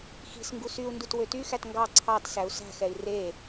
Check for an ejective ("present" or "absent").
absent